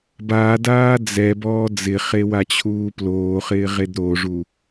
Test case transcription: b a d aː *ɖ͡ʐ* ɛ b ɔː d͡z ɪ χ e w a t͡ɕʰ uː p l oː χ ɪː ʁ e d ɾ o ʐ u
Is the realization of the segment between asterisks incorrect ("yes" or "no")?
yes